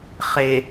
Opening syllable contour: low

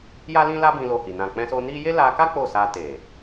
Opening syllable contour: high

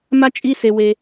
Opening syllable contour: high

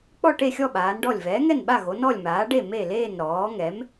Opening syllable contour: falling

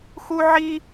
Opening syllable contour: high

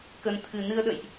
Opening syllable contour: low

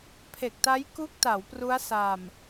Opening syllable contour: low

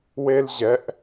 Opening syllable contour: high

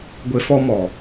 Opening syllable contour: low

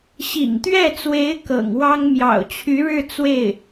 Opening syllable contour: low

